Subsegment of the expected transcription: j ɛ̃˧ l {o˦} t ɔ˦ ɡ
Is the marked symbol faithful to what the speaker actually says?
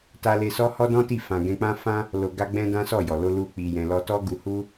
no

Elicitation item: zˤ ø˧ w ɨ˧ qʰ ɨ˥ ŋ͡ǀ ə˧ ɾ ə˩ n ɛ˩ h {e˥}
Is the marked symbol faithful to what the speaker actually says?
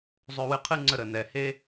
yes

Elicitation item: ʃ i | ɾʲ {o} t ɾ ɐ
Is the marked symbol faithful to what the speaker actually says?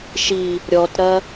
no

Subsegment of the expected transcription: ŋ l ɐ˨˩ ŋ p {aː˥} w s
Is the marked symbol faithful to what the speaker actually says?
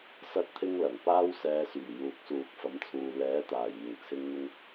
yes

